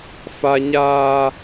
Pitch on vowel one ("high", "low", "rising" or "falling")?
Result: high